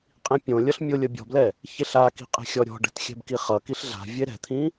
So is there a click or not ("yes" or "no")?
no